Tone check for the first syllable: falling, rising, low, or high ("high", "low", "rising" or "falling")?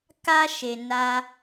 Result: high